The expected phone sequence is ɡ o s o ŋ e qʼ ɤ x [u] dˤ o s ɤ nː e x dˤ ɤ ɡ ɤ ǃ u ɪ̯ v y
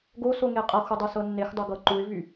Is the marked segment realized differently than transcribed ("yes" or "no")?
no